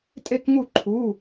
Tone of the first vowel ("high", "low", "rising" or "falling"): falling